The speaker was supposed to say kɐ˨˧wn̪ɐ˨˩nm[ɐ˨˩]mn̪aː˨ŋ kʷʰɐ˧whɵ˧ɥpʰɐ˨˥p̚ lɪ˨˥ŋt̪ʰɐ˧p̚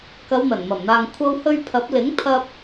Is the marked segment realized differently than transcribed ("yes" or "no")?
no